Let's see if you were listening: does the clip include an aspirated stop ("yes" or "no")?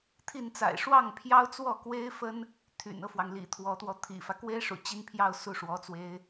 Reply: yes